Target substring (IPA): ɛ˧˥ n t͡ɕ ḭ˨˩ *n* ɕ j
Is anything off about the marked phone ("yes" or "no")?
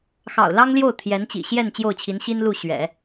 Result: yes